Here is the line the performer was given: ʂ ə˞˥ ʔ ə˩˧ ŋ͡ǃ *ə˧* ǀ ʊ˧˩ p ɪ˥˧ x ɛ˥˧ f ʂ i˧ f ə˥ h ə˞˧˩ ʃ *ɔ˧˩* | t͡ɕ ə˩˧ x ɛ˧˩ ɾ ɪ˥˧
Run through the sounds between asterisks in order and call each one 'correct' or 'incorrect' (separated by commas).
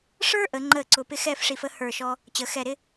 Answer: incorrect, incorrect